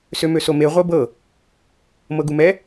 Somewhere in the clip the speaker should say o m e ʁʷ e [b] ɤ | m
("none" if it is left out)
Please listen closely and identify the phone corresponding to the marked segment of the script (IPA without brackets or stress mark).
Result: b